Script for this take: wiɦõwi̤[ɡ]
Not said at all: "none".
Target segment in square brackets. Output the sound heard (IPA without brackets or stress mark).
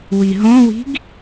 ɡ